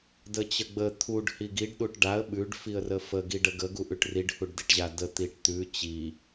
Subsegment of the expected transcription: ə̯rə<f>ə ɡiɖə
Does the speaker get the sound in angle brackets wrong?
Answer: no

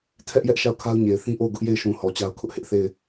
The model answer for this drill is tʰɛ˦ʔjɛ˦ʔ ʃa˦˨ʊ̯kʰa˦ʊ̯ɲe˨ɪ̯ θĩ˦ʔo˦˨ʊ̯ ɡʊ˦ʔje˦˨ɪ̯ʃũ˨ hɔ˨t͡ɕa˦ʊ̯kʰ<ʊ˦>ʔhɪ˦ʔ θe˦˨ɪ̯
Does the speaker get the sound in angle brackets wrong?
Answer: no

